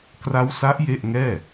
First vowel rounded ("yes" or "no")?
no